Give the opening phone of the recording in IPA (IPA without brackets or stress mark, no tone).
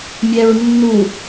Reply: mʲ